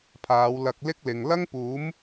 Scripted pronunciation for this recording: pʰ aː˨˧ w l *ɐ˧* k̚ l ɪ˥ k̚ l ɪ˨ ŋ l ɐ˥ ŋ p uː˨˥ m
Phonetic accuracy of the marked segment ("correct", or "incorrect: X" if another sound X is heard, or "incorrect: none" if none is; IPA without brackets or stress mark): correct